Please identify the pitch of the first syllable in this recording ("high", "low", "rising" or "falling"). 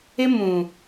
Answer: high